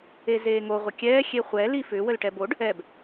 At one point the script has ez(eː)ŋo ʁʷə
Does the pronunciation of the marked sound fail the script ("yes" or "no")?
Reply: no